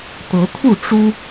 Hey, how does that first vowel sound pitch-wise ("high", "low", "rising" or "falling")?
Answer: rising